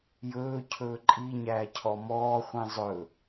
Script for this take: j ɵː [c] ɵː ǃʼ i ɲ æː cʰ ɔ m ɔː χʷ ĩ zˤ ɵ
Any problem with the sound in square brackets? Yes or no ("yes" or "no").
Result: yes